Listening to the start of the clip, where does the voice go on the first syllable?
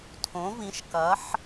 rising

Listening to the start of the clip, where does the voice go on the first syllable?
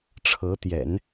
rising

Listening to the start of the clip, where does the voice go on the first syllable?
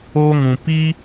high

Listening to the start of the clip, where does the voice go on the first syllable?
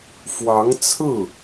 rising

